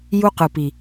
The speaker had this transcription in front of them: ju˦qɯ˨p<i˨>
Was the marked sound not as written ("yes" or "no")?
no